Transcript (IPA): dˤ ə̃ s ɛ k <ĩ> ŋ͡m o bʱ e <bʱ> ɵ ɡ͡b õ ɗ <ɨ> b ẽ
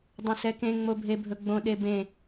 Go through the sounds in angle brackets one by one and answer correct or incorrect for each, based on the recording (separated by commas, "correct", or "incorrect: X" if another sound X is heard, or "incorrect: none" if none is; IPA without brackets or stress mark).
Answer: incorrect: ẽ, correct, incorrect: e